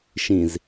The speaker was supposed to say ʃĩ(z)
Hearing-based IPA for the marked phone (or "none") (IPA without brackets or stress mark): z